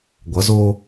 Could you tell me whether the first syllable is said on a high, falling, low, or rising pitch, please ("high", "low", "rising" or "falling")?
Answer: rising